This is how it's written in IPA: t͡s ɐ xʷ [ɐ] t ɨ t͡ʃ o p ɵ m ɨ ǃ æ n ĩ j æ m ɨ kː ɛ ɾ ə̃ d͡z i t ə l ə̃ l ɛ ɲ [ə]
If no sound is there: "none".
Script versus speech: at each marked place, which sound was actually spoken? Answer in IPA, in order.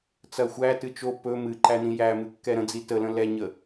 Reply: æ, ə

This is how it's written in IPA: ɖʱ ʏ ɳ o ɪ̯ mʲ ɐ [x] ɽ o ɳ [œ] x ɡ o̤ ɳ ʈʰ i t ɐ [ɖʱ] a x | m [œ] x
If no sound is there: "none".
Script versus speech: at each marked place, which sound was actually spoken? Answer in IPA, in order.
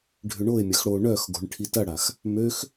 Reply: x, œ, ɽ, ø

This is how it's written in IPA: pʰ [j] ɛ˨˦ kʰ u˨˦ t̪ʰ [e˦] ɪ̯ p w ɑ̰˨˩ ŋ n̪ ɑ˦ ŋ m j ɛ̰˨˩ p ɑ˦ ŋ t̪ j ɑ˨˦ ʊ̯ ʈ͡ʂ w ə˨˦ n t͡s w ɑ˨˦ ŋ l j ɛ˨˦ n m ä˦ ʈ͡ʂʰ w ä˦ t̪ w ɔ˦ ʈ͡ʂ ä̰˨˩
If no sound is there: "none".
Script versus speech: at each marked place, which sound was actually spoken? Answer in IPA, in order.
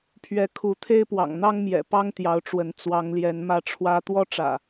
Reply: ɥ, e˦

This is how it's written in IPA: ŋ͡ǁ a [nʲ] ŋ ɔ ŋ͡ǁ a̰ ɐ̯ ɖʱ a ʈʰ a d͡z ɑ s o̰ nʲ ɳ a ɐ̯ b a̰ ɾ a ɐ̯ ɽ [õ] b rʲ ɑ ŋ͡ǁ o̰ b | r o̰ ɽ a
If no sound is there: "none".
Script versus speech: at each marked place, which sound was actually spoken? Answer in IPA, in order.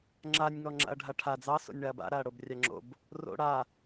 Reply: nʲ, o

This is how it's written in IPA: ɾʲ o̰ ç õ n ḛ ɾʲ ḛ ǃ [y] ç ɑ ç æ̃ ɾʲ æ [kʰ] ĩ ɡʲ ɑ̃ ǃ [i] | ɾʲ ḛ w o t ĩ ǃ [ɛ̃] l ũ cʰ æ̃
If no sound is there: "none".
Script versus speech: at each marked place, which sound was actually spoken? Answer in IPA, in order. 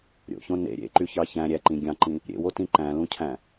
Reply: y, ǃ, ĩ, æ̃

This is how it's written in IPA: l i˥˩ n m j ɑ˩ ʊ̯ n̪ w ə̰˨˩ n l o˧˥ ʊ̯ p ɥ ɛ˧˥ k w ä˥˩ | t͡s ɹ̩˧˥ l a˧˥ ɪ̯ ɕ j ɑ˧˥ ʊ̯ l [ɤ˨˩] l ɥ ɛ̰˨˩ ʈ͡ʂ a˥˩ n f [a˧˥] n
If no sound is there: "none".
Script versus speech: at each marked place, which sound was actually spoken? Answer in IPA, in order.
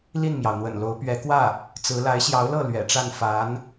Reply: ɤ˥˩, a˧˥

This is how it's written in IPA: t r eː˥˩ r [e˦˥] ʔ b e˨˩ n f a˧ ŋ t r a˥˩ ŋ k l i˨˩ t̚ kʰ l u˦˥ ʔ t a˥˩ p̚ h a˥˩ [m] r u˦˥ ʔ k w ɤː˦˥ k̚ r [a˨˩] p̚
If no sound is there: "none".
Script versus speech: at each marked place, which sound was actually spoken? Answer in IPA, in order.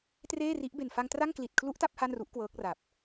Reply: i˦˥, n, a˨˩

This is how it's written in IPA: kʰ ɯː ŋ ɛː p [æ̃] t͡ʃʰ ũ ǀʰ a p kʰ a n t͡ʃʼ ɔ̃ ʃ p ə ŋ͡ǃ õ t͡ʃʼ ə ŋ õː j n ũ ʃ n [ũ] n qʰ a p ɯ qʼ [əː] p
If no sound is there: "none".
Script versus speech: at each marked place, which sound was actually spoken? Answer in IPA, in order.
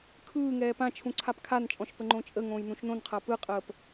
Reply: ã, õ, əː

